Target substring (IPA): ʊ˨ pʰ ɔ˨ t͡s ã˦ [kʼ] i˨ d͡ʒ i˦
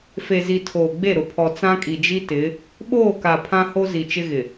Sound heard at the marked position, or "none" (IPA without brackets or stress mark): kʼ